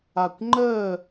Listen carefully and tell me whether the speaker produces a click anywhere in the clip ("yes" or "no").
yes